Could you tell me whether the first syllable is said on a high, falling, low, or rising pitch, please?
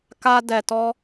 high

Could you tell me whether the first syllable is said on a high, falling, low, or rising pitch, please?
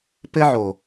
high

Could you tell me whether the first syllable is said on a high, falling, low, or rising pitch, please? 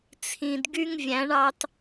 low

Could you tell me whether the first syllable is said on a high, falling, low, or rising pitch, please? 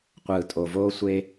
low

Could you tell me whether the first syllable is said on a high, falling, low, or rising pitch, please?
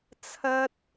high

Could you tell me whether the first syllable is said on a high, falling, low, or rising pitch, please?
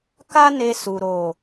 high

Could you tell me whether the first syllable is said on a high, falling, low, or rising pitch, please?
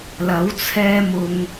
rising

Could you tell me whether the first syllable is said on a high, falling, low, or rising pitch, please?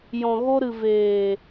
low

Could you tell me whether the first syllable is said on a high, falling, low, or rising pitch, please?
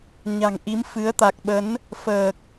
low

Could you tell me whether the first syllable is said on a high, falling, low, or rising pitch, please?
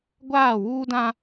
falling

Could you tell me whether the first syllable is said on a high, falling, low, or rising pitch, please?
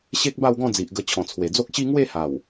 high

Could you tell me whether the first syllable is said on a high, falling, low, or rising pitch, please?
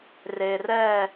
low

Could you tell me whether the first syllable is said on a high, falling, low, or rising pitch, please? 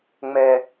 high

